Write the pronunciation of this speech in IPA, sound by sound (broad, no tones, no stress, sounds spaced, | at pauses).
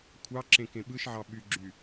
kʷʰ ɑ ǁ ẽ k ẽ ɓ ɯ ʃ ʕ ɑ ɓ y ɡ͡ǁ y